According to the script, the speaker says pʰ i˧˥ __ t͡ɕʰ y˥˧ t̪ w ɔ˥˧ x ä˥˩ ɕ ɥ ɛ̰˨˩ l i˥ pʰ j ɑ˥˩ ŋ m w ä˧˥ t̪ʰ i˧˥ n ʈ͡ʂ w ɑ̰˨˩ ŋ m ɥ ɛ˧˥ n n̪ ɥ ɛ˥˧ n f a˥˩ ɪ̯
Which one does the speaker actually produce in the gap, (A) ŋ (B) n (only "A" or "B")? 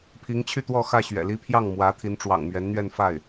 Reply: A